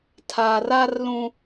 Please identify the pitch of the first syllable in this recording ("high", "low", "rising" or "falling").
low